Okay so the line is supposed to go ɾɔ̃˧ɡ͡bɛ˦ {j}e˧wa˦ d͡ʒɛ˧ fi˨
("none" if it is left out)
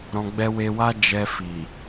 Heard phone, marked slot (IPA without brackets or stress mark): w